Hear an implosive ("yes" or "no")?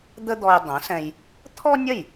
no